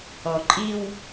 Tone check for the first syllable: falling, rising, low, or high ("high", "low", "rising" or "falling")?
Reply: low